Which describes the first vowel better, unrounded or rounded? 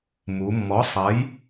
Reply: rounded